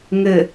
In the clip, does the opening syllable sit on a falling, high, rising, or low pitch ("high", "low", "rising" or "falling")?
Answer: low